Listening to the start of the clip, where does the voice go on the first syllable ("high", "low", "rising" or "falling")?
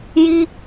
high